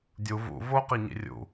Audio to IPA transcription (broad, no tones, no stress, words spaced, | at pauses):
dʲu vṵ voqiɲḭ rʲṵ